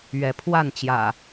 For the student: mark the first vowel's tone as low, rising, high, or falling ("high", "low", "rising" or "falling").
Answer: rising